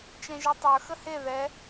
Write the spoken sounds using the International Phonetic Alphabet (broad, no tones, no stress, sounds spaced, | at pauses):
t͡ʃ ɛ̃ ʒ ɛ tˤ ə˞ x ə h e ð ɛ